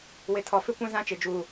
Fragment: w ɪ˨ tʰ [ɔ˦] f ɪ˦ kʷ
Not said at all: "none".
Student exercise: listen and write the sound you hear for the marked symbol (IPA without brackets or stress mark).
ɔ˨